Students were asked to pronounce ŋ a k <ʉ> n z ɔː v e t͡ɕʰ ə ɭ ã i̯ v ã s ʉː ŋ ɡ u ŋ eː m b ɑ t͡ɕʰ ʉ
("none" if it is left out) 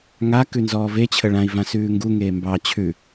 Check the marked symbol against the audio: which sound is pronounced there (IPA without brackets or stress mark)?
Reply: ʉ